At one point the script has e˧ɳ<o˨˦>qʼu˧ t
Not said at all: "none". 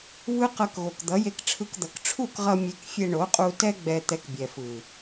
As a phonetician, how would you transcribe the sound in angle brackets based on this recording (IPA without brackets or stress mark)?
o˨˦